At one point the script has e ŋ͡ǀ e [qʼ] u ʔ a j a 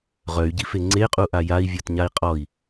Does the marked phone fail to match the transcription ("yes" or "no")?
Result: no